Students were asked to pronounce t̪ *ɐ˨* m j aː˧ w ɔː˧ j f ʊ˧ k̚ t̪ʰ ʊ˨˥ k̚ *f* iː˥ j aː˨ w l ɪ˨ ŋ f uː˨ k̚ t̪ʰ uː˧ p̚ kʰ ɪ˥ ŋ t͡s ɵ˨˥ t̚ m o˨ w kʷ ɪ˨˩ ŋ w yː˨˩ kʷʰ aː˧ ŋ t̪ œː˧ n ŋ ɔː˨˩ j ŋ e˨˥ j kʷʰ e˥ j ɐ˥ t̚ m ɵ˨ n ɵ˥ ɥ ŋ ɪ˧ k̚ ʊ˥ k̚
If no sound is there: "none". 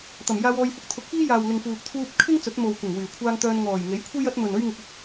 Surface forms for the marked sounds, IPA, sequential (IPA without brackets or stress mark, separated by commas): ɐ˨˩, f